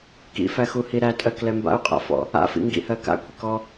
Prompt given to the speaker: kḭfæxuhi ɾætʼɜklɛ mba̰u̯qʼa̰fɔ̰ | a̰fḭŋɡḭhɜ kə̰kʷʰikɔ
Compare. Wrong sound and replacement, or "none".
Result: ə̰ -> a̰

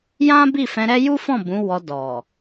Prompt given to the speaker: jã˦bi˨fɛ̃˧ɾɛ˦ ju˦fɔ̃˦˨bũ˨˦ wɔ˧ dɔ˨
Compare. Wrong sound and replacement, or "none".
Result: i˨ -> i˦˨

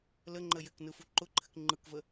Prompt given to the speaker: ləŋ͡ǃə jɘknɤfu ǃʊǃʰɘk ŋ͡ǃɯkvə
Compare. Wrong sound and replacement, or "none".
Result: ɤ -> ɯ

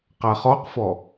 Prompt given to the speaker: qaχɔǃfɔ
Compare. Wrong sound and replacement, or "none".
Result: ǃ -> q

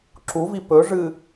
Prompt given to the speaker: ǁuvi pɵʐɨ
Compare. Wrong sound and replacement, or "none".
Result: none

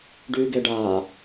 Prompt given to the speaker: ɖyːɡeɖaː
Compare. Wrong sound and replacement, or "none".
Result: none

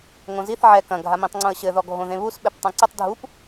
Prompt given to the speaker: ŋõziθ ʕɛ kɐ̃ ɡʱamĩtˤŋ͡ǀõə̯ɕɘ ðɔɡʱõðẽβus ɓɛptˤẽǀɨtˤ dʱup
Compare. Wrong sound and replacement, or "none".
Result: none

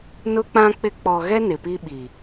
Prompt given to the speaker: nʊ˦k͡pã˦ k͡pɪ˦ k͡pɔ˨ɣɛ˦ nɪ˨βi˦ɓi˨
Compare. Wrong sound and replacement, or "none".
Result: β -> p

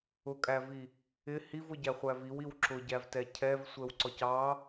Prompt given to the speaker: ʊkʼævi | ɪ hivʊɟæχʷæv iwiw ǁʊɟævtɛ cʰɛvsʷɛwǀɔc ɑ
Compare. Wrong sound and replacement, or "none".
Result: none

